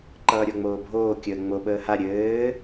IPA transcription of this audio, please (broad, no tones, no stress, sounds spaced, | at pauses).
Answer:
ǃ ʌː ɾʲ o ŋ͡m oː bʱ oː kʲ əː ŋ͡m o ɓ əː h a ɾʲ ɘː